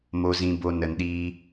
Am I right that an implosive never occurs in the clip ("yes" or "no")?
no